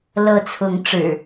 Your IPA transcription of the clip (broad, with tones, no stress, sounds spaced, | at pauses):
l ɤ˨˦ t͡sʰ ʊ˨˦ ŋ ʈ͡ʂ ɻ̩˨˩